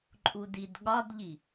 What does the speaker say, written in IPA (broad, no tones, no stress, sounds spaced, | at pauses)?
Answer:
ǃʼ u d i d ɠ ɒ d ʎ i